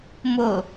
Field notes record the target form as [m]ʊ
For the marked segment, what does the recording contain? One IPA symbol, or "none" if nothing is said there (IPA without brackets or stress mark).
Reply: m